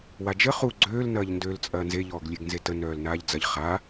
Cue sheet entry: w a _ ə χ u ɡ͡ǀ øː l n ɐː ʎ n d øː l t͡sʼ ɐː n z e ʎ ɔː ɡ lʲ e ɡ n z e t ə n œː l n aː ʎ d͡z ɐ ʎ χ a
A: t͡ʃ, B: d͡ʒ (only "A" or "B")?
B